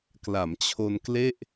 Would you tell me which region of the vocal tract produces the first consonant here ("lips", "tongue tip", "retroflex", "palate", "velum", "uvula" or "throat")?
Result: velum